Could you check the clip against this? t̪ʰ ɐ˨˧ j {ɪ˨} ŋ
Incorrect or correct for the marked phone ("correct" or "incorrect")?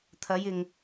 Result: correct